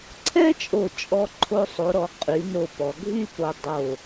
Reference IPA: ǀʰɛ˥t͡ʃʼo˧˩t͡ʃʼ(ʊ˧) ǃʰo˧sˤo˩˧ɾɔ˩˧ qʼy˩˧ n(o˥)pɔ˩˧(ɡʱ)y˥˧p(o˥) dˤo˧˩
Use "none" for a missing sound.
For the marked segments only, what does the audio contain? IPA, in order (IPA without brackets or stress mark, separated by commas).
ɔ˧, o˧˩, ɡʱ, o˧